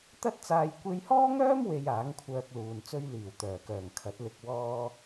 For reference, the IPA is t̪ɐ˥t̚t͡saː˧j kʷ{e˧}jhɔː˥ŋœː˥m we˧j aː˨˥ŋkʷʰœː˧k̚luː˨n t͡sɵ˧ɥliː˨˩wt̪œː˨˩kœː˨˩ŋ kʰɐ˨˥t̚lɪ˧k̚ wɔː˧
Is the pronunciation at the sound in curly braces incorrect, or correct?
correct